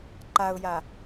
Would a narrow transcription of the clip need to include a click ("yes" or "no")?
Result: yes